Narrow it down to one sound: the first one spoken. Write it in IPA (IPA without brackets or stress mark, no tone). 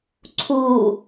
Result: ǀʰ